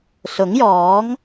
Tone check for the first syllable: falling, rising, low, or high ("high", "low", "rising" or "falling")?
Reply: rising